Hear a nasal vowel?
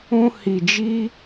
yes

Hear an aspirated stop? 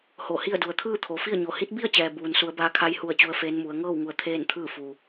yes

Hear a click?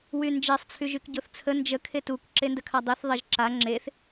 yes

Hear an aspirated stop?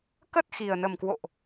no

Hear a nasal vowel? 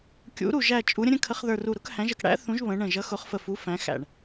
yes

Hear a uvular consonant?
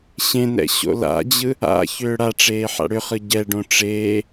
yes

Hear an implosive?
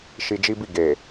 no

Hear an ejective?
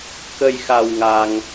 no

